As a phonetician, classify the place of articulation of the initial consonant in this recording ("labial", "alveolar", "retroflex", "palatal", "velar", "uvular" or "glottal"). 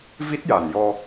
labial